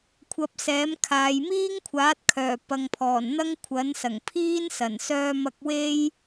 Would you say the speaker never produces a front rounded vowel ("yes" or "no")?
no